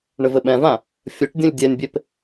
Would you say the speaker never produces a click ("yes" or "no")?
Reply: yes